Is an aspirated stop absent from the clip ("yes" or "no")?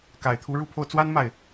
no